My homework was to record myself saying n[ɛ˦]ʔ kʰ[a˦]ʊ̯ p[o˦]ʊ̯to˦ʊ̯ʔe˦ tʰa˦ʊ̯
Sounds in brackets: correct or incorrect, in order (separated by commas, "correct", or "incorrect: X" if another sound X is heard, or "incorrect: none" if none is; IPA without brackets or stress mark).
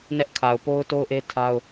correct, incorrect: a˨, correct